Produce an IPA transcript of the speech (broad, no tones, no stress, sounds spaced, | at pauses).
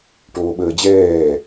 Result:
ʈ oː ɓ əː d͡ʑ ɛː